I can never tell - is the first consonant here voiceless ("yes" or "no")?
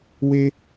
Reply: no